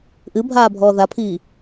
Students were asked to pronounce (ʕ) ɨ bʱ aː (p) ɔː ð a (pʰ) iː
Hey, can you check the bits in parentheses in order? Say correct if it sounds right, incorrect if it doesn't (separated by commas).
incorrect, incorrect, correct